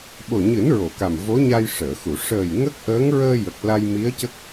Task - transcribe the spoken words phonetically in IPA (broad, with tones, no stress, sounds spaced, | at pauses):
ɓ o˨˩ ɲ ɨ˨˩˦ n ɹ o˨˩˨ k a˨˩ m v o˧˥ ɲ a˧ j ʂ əː˨˩˨ x u˨˩˨ ʂ əː˨˩ j ŋ ə˦˥ k̚ ʔ əː˧˥ ŋ ɹ əː˧ j ə˨˩ k̚ l a˧ j m i˧˥ ə̯ c ə˦˥ k̚